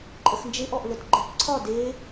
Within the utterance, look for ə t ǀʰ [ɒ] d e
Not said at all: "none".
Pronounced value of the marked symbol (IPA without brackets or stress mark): ɒ